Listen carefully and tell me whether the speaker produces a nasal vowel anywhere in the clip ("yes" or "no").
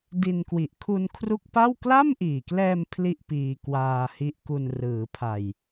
no